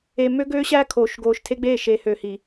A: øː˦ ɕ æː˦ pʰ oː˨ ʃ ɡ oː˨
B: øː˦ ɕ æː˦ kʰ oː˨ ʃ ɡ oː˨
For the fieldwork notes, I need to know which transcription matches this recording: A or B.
B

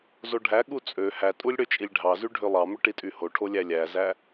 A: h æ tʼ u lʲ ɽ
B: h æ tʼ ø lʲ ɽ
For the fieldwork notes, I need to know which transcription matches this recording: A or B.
A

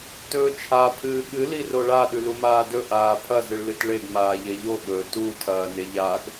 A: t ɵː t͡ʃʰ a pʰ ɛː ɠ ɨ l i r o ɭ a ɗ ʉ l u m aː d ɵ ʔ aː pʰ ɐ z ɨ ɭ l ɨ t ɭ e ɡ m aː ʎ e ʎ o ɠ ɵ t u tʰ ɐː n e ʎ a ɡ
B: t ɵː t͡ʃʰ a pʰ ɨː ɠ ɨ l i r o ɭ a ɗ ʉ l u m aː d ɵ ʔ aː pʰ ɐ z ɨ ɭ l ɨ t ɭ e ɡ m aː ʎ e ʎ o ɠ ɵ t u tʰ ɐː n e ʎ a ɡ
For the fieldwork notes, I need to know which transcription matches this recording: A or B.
B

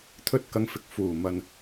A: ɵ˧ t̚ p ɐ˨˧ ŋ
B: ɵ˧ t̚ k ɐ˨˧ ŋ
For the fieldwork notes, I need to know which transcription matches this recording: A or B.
B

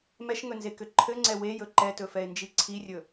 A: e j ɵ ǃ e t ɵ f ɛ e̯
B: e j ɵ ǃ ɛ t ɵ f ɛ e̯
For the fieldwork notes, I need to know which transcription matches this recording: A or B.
B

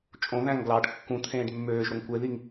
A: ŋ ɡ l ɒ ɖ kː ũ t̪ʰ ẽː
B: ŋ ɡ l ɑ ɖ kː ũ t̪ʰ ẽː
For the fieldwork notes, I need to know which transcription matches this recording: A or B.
B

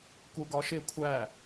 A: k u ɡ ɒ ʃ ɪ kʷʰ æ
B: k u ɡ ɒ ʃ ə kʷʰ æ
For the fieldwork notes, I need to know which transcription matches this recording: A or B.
A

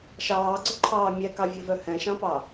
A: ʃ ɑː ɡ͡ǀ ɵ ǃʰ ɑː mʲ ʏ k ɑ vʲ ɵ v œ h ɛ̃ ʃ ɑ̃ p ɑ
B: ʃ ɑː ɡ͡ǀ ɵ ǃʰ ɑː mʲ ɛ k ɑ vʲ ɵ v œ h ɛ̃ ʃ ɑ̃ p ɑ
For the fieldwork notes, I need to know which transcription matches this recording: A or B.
B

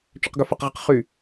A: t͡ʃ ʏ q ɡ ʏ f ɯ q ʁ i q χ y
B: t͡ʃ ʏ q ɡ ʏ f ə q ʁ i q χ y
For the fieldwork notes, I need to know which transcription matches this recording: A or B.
B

